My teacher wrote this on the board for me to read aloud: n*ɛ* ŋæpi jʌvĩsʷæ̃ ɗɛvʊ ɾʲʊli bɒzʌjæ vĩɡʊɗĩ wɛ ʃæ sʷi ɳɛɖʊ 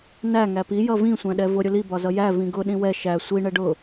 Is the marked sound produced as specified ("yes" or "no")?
no